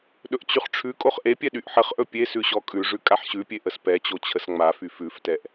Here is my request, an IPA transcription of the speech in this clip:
ɗɵʔt͡ɕyχʈ͡ʂʰʉkʼoχ ʔepʲɛ ɗyʔħəχʔɵ pʲesʉ ɕɔkʼʉʐʉ kʼaħɕʉpʲe ʔəspɛt͡ɕo t͡ɕʰəsŋ͡mafy fʉftɛʔ

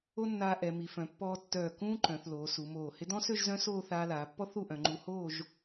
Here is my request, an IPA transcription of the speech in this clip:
o˥nːaː˧ ʔɛ˩˧ mi˩˧fœ̃˩˧ pːɔː˧tːœː˧˩ kũː˥ǃœ̃˩˧θ loː˩˧su˩˧ moː˧˩hɪ˥ dɔ̃˥sø˥˧ʒ zœ̃˥soː˥˧ θaː˧laː˩˧pːɔ˥ θu˥˧ʔœ̃˩˧ŋ͡ǃu˧ hoː˥˧ʒ

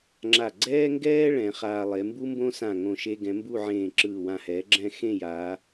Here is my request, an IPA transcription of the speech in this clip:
ŋ͡ǁa˧˩ ɡ͡ǀɛː˥ŋɡɛː˥ ɭɛ̃˩˧χaː˧lˠe˩˧ mbu˥mbõ˥sã˧˩ ŋõ˥˧ʃe˥ ɡɛ̃˩˧mbu˥˧ʕẽː˧˩ ǁɯː˧˩wã˧˩hɛː˩˧ ɡ͡ǁɛ̃˥˧ xẽ˥˧jaː˩˧

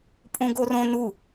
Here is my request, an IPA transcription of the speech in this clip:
pʼũɡorõ nu

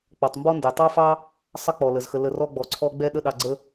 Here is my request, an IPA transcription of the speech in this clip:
k͡pɔ˩tˤmbɔ˦ndɛ˩ tˤɑ˥fɑ˥ | sˤə˥k͡pɔ˩lə˩zxə˨ lə˨rɔ˦ɡ͡bɔ˩ǀʰɔ˦ ɡ͡bɛ˦ɗə˦ ɗɑ˨ɡ͡ǀə˦

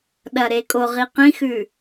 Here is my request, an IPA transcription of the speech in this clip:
ɗɐɾekʼoʁi qĩxʉ

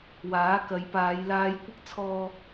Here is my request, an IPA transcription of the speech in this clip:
waː˨˥kɐ˨˧jpaː˨˧j laː˧jkʷɪ˥k̚ t͡sʰɔː˥

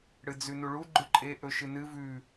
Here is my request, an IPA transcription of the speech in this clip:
ɽɨd͡zʉnuɭu ɡ͡ǃʉǃʼe ʔɵʃɨnɨ vʉ

